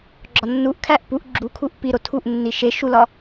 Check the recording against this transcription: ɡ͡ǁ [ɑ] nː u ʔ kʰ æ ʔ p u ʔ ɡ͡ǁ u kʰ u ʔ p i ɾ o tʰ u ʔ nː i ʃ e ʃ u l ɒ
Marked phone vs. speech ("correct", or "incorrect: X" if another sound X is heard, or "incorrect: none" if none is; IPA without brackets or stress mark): incorrect: ɒ